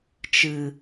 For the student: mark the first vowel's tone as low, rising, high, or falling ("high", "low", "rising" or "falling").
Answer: low